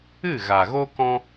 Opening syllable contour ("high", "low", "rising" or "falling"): falling